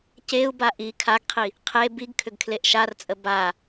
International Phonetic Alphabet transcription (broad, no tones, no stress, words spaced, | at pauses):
ceu̯ba ʔi kʰaɡqʰi | qʰe biɡkʰʏɡ kʰleʔʃart͡sʼə ba